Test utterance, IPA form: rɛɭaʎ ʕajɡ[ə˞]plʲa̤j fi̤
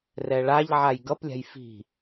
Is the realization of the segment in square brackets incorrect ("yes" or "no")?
yes